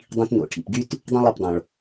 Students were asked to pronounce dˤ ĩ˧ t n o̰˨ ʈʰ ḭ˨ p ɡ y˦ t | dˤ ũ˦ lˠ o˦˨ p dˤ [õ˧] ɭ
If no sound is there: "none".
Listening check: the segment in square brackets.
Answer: õ˨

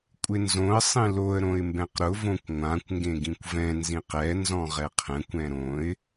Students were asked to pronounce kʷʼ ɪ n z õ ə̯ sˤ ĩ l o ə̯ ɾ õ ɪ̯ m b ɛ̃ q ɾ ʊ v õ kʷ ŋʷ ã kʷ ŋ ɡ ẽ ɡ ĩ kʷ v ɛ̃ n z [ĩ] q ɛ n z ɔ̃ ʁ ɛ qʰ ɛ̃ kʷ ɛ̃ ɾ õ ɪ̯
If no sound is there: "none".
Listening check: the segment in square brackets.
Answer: ĩ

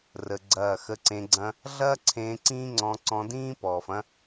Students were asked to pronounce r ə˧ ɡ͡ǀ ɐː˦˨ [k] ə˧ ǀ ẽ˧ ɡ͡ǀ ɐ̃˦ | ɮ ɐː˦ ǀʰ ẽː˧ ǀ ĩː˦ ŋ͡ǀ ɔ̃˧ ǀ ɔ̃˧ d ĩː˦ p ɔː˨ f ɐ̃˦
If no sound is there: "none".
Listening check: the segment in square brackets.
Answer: x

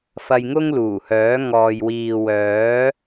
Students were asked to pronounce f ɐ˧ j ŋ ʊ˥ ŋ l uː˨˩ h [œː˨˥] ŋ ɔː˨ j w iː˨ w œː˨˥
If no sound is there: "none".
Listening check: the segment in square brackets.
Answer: œː˨˥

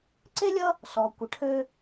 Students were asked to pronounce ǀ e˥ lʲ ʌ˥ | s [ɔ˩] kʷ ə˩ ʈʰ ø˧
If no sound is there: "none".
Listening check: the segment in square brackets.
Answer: ɔ˩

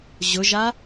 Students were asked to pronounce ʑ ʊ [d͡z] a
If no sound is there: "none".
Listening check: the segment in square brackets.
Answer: ʒ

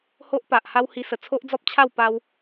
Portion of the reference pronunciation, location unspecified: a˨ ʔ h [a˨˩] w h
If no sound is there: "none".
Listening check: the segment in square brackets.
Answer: a˦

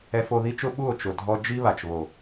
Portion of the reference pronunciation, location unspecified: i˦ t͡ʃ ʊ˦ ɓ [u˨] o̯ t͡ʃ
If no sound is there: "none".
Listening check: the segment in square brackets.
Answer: u˦˨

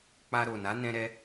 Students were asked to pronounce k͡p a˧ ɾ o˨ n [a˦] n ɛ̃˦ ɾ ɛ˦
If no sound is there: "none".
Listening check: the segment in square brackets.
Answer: a˨˦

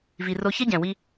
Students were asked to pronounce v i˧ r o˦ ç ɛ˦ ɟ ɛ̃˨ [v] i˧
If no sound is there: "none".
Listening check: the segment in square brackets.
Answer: w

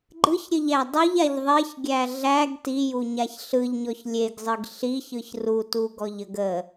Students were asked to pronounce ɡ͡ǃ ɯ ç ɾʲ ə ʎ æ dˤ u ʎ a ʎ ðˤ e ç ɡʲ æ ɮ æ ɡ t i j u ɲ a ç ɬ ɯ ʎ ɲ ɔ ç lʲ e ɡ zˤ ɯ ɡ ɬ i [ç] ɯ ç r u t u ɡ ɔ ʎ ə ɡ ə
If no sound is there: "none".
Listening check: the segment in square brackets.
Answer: ç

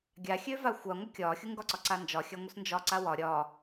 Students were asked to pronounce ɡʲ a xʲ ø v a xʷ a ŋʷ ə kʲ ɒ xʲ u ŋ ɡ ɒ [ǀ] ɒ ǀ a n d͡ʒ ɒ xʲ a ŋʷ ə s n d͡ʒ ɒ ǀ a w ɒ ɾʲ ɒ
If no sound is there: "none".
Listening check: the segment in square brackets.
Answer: ǀ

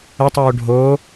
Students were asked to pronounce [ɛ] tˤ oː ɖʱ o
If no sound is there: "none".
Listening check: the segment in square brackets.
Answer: ə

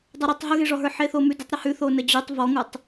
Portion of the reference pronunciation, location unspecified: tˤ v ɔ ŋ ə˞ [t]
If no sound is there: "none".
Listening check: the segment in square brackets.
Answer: tˤ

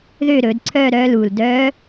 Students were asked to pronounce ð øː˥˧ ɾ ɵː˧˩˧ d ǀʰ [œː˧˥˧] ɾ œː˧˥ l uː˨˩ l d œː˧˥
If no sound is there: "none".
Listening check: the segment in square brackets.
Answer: œː˥˧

